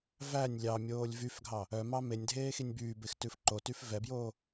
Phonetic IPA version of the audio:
v æ nʲ lʲ ɑ mʲ oː lʲ v y f ɡʱ ɑ | œ m ɑ m e nʲ dʱ eː x i nʲ b yː b e x t ʉ f ǃ o t y f v ɛ b j oː

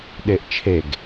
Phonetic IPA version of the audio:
ɗ e ʔ t͡ʃʰ e ɡ

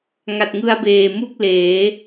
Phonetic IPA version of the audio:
ŋ a˨˩ t̚ ŋ ɯ˧ a̯ b eː˨˩ m u˥˩ k̚ l eː˩˦

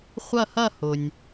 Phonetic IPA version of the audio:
χʷ ɐ˦˨ h ɐ˦˨ h ʊ˩ nʲ

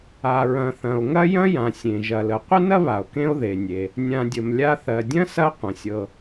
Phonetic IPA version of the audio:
a˩ ɹ ɐ̃˨ θ ɐ̃˩ o̯ ŋ ɐ˥ j ɐ̃˥ j ã˩ sʲ ẽ˩ ʒ ɐ˨ l ə˨ qʷ ə˥ n ɐ˥ β a˩ o̯ k ẽ˦ o̯ ð e˩ nʲ e˩ | nʲ ã˨ dʲ ə˩ m lʲ a˦ θ ɜ˩ dʲ ɐ̃˥ s ɐ˦ qʷ ɐ̃˩ sʲ ɤ˨

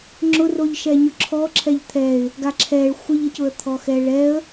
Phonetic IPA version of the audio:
ŋ͡ǁ ʊ r o ʎ ʃ ɛ ɲ ʊ ǁʰ ɔ ǁʰ ɛ ʎ t̪ʰ ɛ ɪ̯ | ɡ a ǁʰ ɛ ɭ xʷ ə ʎ ə c ʊ ə̯ t̪ʰ ɔ x ɛ ɭ ɛ ə̯

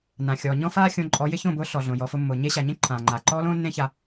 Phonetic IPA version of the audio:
n ã˨ xʲ ɔː˨ ɲ ɔ̃˦ f aː˦ xʲ õ˧ ǃʼ ɔ˨˦ j ɪ˧ ç õ˦˨ b ʊː˧ ɬ ɔ˨ ɮ õ˨ j ɔ˨ f ʊ˧ mː ʊː˨ ɲ e˦ ɕ a˨ ɲ ẽ˦ ǃʰ ãː˨ ŋ͡ǃ aː˨ ǃ ɔː˦ l õː˦ nː ẽ˦ ç a˧

